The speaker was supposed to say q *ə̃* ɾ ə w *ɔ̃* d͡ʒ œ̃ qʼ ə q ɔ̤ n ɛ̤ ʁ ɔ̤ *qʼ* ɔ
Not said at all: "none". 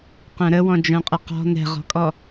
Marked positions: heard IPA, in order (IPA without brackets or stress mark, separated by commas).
œ̃, ɔ̃, kʼ